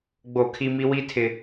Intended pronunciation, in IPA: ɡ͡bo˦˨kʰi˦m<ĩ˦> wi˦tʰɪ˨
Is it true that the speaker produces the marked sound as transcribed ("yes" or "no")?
no